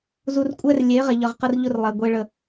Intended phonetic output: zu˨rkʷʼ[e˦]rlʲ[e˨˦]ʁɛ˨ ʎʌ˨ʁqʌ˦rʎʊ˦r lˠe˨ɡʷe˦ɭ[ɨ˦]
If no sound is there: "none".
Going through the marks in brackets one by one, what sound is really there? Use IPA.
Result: ɛ˦, e˨˦, ə˦

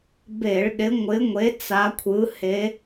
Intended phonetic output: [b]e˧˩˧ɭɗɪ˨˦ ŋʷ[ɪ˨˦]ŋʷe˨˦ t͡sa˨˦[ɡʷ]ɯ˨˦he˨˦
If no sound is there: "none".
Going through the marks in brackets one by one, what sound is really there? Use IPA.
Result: b, ɪ˨˦, kʷʰ

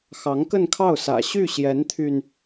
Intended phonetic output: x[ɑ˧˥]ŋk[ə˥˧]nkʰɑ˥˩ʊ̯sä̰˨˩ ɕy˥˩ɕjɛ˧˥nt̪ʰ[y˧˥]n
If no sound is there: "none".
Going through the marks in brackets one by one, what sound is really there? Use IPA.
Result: ɑ˧˥, ə˥˧, y˧

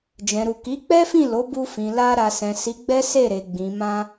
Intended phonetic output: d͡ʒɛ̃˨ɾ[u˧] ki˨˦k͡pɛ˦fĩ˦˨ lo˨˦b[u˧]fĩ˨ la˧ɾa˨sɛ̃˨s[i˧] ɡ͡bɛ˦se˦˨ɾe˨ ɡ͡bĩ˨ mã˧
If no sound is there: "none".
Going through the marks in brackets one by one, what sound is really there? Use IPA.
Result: u˨, u˧, i˨˦

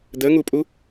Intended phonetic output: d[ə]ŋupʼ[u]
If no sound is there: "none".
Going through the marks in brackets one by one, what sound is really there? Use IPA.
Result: ə, u

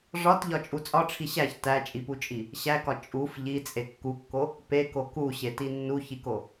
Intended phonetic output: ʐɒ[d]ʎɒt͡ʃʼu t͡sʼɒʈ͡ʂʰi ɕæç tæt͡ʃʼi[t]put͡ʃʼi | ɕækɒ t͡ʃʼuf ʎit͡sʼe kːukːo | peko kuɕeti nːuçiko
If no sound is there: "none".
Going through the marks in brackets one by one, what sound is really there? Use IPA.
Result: t, none

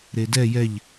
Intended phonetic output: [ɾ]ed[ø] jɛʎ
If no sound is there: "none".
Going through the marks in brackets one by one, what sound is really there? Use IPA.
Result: ɾ, ɛ

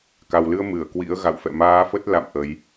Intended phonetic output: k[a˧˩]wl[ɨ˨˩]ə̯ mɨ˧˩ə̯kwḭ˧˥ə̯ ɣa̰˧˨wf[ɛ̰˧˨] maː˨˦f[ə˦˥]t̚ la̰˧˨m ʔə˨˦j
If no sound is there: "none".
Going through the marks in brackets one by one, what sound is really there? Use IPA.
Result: a˨˩, ɨ˧, ɛ̰˧˨, ə˦˥

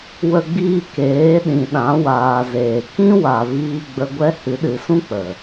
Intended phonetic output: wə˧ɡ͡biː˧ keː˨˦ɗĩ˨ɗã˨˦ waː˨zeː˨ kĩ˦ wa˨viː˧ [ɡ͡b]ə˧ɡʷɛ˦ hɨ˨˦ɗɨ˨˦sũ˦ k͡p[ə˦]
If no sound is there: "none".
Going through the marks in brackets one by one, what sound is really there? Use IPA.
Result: ɡ͡b, ə˨

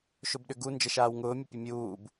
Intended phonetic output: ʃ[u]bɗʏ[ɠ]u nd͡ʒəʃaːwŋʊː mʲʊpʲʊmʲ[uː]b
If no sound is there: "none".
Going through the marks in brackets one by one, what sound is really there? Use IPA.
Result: ʊ, ɡ, uː

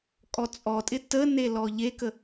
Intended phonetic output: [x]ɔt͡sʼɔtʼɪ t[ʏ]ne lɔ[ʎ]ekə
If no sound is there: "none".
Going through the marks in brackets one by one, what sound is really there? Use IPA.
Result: kʼ, ə, ʎ

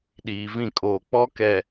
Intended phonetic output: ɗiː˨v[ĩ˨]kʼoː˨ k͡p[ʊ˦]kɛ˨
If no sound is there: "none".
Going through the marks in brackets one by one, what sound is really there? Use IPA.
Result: ĩ˦˨, ɔ˦

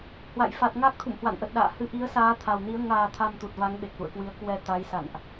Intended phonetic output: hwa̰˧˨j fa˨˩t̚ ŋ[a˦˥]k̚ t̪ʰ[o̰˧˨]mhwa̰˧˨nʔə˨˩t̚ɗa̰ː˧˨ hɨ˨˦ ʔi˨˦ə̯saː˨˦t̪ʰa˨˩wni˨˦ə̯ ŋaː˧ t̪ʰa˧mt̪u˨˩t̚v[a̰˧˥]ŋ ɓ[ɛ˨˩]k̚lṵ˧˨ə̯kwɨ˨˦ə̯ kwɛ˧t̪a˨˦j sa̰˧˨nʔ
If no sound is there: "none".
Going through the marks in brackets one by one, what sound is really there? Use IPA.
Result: a˦˥, ṵ˧˨, a˨˦, e˨˩

